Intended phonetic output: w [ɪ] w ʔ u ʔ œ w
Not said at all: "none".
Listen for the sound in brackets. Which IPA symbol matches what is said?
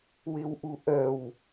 ɪ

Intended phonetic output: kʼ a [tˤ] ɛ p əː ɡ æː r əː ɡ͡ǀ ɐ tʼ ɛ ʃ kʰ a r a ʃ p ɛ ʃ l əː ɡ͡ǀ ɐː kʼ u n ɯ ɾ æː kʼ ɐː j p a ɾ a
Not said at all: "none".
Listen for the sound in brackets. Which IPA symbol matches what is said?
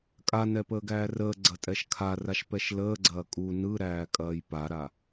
n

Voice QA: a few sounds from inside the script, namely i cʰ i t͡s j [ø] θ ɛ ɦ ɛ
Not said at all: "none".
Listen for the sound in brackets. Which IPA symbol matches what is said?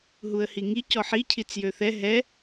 ø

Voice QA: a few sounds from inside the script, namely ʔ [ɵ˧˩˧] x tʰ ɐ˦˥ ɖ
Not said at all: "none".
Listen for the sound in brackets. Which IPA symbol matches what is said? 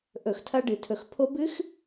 ɵ˧˩˧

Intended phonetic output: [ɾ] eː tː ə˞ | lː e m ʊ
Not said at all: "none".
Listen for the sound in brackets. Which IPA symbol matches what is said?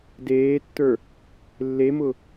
d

